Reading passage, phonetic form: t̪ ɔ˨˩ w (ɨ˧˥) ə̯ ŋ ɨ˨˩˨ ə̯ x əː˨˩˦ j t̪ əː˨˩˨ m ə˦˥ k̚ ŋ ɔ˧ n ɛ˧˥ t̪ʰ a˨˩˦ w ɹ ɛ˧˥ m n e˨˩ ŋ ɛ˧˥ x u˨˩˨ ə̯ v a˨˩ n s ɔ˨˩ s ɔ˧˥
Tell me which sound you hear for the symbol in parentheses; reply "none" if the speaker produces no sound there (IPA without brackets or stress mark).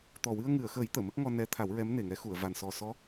ɨ˧